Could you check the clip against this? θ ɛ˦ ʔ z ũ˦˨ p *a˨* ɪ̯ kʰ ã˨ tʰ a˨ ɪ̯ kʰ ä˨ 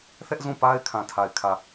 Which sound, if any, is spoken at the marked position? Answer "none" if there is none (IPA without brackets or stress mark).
a˦